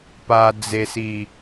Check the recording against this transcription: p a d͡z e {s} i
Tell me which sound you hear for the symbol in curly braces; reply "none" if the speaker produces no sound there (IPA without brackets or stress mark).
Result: s